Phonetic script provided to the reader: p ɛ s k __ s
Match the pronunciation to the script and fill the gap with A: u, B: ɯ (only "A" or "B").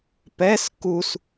A